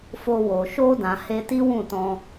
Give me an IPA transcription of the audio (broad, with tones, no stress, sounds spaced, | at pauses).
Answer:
f o˧ w o˨ ʃ o˧ d ã˨ h e˧ t i˦ w ũ˦˨ t ɔ̃˧